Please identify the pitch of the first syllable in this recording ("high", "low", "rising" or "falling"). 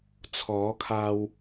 rising